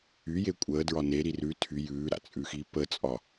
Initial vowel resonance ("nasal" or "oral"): oral